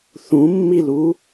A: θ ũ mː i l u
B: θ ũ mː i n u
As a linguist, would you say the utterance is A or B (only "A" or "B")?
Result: A